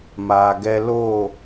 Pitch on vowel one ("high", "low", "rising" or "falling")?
low